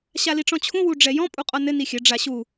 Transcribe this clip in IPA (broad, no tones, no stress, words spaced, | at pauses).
ɕaliʈ͡ʂɔ̃t͡ɕʰũ wuɖ͡ʐɛjɔ̃ pʼuqʼɔnɘ nixʲɘ ɖ͡ʐaɕu